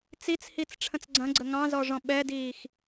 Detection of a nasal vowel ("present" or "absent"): present